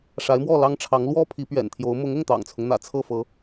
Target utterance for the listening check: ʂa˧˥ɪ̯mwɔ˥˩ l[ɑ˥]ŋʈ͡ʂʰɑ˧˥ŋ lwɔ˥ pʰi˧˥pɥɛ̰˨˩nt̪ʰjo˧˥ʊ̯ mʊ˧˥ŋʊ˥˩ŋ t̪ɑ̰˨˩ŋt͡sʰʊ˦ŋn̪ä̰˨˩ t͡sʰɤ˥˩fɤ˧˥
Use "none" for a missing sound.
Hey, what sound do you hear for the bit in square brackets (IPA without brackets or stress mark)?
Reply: ɑ˥